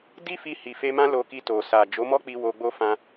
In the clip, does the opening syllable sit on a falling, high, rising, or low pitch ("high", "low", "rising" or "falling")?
high